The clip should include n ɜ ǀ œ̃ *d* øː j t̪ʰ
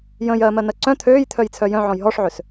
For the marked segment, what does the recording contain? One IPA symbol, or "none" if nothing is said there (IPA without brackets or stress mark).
t̪ʰ